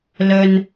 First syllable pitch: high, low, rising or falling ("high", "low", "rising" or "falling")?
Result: low